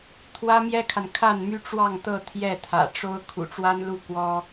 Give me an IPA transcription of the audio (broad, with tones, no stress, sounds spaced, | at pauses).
t̪ʰ w ä˥ m j ɛ˥ kʰ a˨ n kʰ a˥˩ n m y˥ ʈ͡ʂ w ɑ˥˧ ŋ t̪ ɤ˥˧ t̪ʰ j ɛ˥˩ t̪ʰ ä̰˨˩ ʈ͡ʂ o˥ ʊ̯ kʰ ṵ˨˩ ʈ͡ʂ w a˥ n l u˥˩ k w ɔ˥